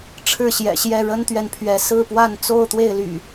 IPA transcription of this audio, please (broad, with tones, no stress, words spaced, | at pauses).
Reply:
ʈ͡ʂʰɻ̩˥˨ɕjɛ̰˨˩ɕjɛ˥˨ ɻə˦nt̪ɥɛ˨npʰɥɛ˨˦ sɹ̩˥˨pwa˥˨n t͡so˥˨ʊ̯t̪we˥˨ɪ̯ly̰˨˩